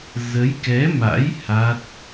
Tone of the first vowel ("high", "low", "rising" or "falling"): rising